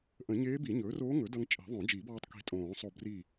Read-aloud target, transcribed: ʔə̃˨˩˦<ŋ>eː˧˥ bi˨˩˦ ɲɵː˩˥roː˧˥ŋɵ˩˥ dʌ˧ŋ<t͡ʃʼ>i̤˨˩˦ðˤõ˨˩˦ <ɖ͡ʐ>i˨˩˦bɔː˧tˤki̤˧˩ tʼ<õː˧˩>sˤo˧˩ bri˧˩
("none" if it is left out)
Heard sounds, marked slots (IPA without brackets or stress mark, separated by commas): ɲ, t͡ʃʼ, d͡ʒ, õː˨˩˦